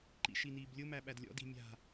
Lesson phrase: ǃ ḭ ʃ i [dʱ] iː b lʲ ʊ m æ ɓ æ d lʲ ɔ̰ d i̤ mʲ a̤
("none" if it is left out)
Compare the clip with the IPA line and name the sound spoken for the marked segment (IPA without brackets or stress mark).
n